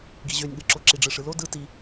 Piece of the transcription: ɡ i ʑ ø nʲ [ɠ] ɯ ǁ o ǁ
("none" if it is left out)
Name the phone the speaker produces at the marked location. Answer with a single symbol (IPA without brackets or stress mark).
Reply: ɠ